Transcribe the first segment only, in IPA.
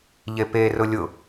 ʎ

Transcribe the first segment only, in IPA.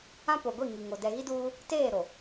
ã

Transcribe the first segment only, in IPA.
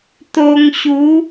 t̪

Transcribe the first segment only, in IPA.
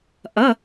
ʔ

